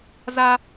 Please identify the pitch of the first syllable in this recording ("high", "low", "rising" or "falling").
high